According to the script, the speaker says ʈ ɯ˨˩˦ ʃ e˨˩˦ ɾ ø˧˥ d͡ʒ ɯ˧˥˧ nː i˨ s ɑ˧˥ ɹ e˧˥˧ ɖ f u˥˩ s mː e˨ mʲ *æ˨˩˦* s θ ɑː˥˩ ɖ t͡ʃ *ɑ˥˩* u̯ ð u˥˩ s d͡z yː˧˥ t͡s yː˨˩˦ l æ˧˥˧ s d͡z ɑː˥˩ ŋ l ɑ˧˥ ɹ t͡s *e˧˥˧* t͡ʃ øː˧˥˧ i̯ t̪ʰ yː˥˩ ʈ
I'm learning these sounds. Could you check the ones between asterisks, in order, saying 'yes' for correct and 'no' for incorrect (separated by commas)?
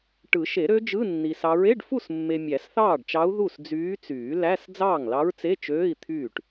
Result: yes, no, yes